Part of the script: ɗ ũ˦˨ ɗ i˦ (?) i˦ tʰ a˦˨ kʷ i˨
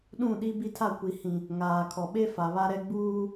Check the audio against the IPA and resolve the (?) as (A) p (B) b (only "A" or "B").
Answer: B